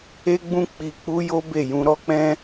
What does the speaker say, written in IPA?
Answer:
e˦ ɡ͡b ũ˦ k͡p i˧ k͡p u˦ j o˦ b e˦˨ j ũ˧ ɾ ɔ˦ k͡p ɛ̃˦

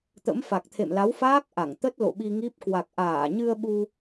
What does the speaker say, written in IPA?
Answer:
t̪ ə̰˧˥ m f a˨˩ k̚ t̪ʰ ḛ˧˨ m l a˨˦ w f aː˦˥ k̚ ʔ a˧˩ ŋ t̪ ə˦˥ t̚ l o̰˧˨ ɓ i˧ ŋ i˦˥ p̚ k w a˨˩ k̚ ʔ aː˧˩ ɲ ɨ˧ ə̯ ɓ u˧

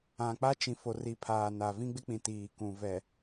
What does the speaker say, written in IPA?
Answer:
ã˨ k͡p a˦ t͡ʃ ĩ˨ f o˨ r i˨ pʰ aː˨ n a˨ v ĩ˦ ɡ͡b ɪ˦ k͡p ĩ˨ t iː˨ k ũ˨ v ɛ˨

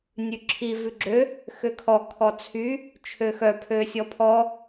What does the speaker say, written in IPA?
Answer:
nʲ ʉ ǁʰ i v ʉ ɡ͡ǁ ø | x ø kʰ ɔ kʰ ɔ t͡sʰ y | t͡ʃʰ ø x œ pʰ ø sʲ ɔ pʰ ɔ

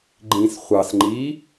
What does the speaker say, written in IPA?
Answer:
ɡ͡ǃ ĩ s χʷ ɑ s ŋ͡ǃ iː

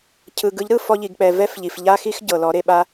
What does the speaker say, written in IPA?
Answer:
cʰ ɯ˨ ɡ ɯ˨˦ ʎ ɾ ɯ˦˨ f ɔ˧ ʎ i˨ ɡ k͡p ɛ˨ v ɛ˦ f ʎ i˨ f ʎ a˦ x i˦ x ɟ ɤ˨ l ɔ˨˦ ɾ e˧ ɓ a˧

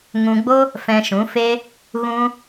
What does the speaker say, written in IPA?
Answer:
ŋ ũ˧ ɡ͡b o˦ | f ɛ̃˧ ʃ ũ˨˦ f e˦ | ɣ ũ˦

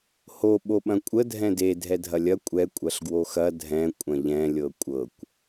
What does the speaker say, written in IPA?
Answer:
h o ɓ o ɓ ɐ̃ kʷʼ ə dʱ ɛ̃ d e dʱ ɛ dʱ ɐ lʲ ɐ kʷʼ ɛ kʷʼ ɐ ɬ ɡ w o x ɐ dʱ ɛ̃ kʷʼ ɐ̃ ʎ ɛ̃ lʲ ɤ kʷʼ ɤ kʷ

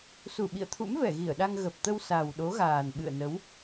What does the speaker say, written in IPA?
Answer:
s u˧˩ ɓ ḭ˧˨ ə̯ t̪ʰ ṵ˧˥ m v ɛ˧˩ ɣ i˧˩ ə̯ ɗ a˧ ŋ ɣ ə˨˩ p̚ t̪ ə˧ w s a˨˩ w ɗ o˨˦ ɣ aː˨˩ n ɓ ɨ̰˧˨ ə̯ n ə˨˦ w

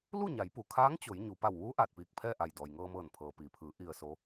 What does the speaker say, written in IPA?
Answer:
l u˥˨ ɲ a˩˧ j p u˩ kʰ aː˧˥ ŋ t͡ɕ o˩˧ j ɲ u˩ p a˧˩ w ʋ uː˧˥ ʔ aː˧˩ t̚ p iː˧˩ k̚ pʰ ɛː˥˨ ʔ a˧˩ j d ɔː˩ j ŋ ɤː˧ m ɤː˧˩ n pʰ ɤː˩ p iː˩ pʰ ɯː˩˧ ʔ i˧ ə̯ s o˧˥

